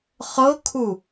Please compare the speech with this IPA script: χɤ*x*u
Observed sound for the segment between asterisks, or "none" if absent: kʰ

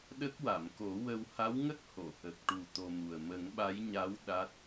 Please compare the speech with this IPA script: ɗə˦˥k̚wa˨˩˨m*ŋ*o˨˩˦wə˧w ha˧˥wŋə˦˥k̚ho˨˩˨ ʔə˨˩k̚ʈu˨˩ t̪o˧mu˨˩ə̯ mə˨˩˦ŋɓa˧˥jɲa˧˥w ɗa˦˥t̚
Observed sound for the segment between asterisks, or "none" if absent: k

